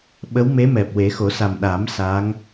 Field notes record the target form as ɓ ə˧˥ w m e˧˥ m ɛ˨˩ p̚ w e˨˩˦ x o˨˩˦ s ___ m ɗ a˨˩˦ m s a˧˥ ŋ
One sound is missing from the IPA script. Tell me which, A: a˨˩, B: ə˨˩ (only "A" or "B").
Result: A